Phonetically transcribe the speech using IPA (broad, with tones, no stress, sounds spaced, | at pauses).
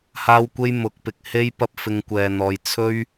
h aː˥ w kʷ e˥ j m ʊ˨˥ k̚ p ɪ˨ k̚ h e˥ j p ɐ˥ p̚ f ɪ˧ ŋ kʷ ɛː˨ n̪ ɔː˨ j t͡sʰ ɵ˥ ɥ